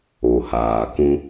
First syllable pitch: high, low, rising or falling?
low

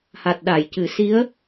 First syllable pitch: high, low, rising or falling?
low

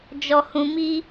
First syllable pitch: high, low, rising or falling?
high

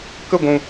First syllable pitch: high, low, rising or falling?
falling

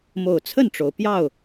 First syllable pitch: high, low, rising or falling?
low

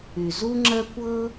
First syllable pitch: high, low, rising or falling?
low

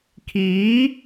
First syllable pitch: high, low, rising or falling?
rising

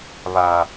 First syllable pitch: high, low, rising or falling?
low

